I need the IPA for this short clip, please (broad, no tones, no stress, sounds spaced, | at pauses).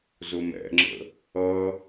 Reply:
z ʊ m ɛ̰ ŋ͡ǁ ə̰ | ʌ